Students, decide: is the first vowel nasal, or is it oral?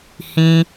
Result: nasal